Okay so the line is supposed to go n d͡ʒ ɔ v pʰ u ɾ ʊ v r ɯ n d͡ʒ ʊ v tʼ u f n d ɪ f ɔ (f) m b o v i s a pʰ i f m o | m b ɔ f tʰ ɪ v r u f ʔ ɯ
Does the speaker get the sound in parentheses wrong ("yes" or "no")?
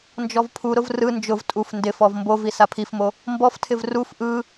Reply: yes